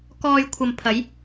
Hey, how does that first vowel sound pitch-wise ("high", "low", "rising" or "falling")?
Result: low